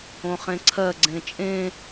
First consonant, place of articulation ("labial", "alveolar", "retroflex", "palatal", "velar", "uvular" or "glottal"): uvular